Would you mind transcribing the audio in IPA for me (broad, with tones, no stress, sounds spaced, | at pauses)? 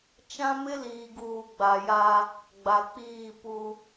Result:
t͡ʃ ã˦ m ɪ˦ l iː˨ ɡ uː˨ ɡ͡b a˨ j a˦ | ɡ͡b a˨ k͡p iː˦˨ p u˦